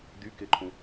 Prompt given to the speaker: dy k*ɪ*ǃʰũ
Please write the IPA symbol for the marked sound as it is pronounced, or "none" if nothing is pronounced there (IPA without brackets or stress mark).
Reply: ɪ